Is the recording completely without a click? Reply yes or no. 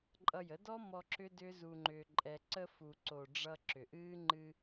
no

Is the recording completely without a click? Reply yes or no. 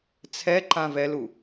no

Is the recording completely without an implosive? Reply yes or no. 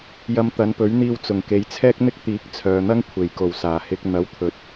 yes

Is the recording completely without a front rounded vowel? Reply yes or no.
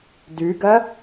yes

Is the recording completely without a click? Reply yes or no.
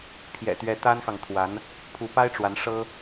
yes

